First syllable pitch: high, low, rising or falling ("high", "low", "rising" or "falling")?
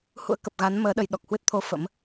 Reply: rising